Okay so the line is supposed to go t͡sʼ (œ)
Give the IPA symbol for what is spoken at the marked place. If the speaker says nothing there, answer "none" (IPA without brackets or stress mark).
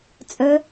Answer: œ